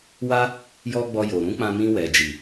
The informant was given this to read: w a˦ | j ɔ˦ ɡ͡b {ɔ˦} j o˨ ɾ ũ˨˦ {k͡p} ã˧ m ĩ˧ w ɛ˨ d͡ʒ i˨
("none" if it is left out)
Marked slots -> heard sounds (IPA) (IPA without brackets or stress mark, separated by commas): ɔ˧, k͡p